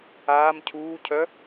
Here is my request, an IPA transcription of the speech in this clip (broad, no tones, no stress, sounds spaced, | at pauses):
aː m cʰ uː cʰ œ